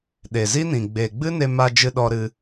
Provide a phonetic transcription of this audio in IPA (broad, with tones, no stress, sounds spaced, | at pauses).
ɗ e˨ z i˦ n ĩ˨ ɡ͡b e˨ ɡ͡b ɨ˦ n e˧ m a˧ d͡ʒ ɨ˧ ɗ ɔ˧ ɾ ɨ˧